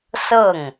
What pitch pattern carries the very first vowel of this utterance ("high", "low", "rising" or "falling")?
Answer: falling